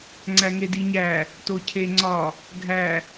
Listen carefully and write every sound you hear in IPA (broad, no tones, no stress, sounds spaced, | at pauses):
ŋ͡ǀ æ ŋ e d i ɲ æ | t o cʰ e ŋ͡ǀ ɒ | ɡʱ æ